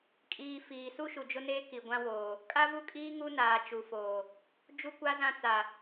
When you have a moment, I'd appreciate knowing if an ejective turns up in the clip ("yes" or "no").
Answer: yes